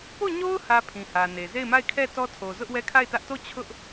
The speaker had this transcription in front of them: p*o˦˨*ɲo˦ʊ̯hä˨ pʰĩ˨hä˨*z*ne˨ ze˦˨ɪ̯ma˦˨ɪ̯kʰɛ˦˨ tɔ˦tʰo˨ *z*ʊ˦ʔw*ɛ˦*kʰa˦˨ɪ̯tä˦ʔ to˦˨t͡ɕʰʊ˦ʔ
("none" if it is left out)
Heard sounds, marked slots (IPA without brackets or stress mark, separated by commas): o˦˨, none, z, ɛ˦